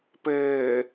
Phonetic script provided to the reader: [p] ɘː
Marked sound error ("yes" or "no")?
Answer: no